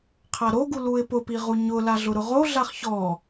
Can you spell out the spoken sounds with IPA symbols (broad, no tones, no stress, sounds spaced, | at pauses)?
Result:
qʰ a ɾ o ɡ u l u ɪ̯ p ʊ p i ʁ u ɲ ʊ l a ɮ ʊ ɾ ʊ ʁ o ɮ a χ ç ɔ